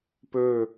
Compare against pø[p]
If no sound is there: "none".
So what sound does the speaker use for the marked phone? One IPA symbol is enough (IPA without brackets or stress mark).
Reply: none